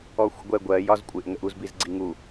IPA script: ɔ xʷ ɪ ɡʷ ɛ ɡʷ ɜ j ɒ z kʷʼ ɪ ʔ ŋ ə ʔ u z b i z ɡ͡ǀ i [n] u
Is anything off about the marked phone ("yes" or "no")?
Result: yes